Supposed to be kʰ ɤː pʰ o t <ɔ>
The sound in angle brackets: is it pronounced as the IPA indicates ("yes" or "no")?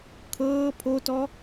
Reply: yes